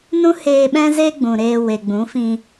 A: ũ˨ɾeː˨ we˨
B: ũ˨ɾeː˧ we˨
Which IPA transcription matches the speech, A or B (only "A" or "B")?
B